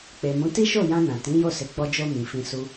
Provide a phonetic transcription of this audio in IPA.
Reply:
k͡pe˨mũ˨˦ ti˦ʃo˦˨ jã˧ nã˨ tĩ˨˦jo˦˨ se˨˦ɡ͡bɔ˧d͡ʒo˧ mĩ˨fĩ˧su˦

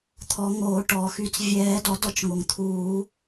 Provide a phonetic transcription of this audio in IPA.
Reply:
t̪ʰɔ˨˩˦ŋoː˨˩˦ ʈɔː˩xy˨˩˦t͡s vʲɛː˨˩˦dɔ˨˩˦d ɔ˩t͡ʃ ŋo˩ŋt̪ʰuː˨˩˦

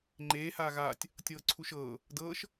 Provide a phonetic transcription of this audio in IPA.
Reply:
ŋ͡ǃeːhaː ɣaːtʲ | tʲɤːǀʰuʃɤː | dɤːʃ

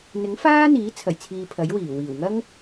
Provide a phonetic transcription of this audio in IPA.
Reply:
n̪ɪ˨˥ŋfaː˥ n̪iː˨˥t͡sʰɐ˨˩jt͡sʰiː˨ pʰɐ˨˥jwiː˨˩wiː˨˩w ŋɐ˥ŋ

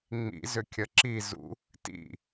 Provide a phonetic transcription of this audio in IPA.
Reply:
ŋ͡mḭzʏkʲʌ ǁi zṵ | tḭ

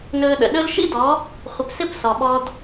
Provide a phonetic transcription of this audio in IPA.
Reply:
nɵː˧ɗə̰˨ ɗɵ˦l ʃḭ˦dɔ˨˦ | χʷɪ˨psɪ˦˨p sɔ˨ɓɔ˧d

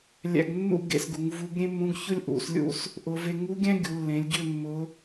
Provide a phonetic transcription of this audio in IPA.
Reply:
lʲæ̰˧ɡnːṵ˥˧ ɡḛ˧sɡu˩˧ŋ vu˧˥ɡ ɾʲẽ˥mːũ˧˥ɡ çʊ˥lʲʔṵ˩˧slʲṵ˥˧s | ʔʊ˩˧ve˧ ŋu˧˥ɡʲæ̃˥ ɡʲu˩˧ lːẽ˩˧lʲɟʏ˥˧ mːʊ˧˥

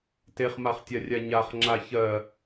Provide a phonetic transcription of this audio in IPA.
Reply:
teχmaχtʲarʲa ɲaχŋ͡ǁa çɜ

